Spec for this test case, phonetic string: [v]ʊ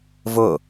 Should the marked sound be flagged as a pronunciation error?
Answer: no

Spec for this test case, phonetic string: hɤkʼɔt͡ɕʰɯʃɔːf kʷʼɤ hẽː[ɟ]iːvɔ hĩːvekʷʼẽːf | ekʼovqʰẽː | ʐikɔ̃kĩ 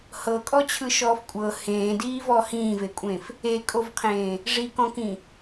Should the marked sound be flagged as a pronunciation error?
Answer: yes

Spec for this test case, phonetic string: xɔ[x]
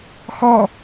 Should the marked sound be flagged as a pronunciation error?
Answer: yes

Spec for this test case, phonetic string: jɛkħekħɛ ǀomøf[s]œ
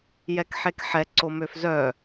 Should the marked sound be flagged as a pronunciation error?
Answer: yes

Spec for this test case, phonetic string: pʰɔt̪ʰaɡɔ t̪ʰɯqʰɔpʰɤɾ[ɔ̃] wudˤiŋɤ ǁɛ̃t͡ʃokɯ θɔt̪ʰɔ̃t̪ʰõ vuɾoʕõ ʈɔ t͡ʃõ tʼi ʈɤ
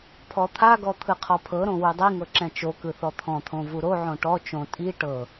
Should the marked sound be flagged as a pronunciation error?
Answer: yes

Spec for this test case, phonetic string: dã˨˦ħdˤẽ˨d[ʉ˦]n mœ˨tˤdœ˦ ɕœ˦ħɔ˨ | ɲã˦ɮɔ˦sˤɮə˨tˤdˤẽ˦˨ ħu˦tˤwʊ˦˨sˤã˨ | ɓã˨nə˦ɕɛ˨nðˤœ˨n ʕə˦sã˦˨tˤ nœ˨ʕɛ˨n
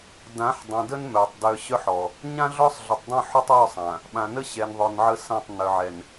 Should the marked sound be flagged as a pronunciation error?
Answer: yes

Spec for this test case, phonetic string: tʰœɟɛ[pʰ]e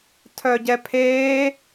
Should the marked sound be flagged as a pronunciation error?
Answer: no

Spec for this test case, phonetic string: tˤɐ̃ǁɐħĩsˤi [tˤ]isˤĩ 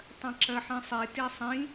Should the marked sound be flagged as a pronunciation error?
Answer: yes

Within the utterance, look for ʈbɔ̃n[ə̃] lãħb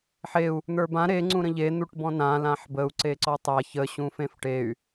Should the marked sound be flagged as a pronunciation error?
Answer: yes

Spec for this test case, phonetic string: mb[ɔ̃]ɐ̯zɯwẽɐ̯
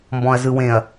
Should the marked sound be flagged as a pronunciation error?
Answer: no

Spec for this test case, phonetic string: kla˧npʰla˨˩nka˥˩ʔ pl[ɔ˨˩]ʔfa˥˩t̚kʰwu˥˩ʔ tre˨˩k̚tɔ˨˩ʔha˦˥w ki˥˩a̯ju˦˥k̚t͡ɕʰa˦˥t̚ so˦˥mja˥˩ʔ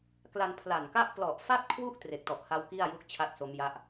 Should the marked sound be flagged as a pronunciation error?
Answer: no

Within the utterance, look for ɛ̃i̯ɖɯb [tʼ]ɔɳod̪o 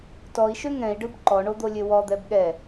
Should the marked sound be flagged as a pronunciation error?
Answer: yes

